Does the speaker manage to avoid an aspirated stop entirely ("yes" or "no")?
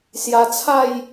no